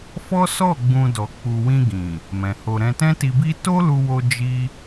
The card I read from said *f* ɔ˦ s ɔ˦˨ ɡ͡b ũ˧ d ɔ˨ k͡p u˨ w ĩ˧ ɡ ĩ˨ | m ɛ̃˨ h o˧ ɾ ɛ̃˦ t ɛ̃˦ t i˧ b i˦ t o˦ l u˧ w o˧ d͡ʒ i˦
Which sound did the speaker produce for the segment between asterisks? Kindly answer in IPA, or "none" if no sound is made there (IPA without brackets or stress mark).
f